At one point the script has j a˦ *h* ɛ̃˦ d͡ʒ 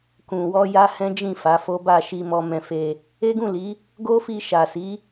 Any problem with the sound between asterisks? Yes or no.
no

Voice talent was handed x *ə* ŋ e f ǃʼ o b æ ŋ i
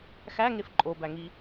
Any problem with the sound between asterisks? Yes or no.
yes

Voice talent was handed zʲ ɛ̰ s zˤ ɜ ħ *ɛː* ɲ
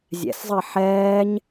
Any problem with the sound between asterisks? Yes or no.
no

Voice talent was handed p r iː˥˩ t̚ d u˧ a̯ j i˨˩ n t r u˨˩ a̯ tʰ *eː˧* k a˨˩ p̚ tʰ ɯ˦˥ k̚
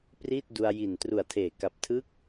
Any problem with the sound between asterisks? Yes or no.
yes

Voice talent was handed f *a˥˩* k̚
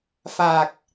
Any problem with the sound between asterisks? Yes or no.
yes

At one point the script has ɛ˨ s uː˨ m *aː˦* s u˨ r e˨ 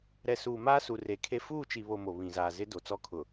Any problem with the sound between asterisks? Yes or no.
no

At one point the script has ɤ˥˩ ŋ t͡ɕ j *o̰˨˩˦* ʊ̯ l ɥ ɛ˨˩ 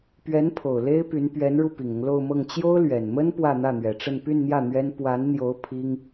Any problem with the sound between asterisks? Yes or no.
yes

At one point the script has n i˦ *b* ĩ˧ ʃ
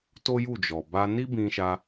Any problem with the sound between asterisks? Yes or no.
no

